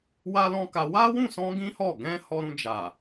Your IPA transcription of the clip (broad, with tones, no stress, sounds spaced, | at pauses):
w a˦ l ɔ̃˦ k a˧ w a˦ w ũ˦˨ s ɔ̃˧ ɡ ĩ˦ h ɔ˦˨ ɡ ɛ̃˧ h ɔ˧ ɾ ũ˧ d͡ʒ a˨